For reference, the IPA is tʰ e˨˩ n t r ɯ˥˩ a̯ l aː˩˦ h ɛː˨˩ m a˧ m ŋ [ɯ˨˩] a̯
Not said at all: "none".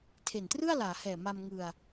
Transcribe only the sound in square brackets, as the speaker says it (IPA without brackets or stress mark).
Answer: ɯ˧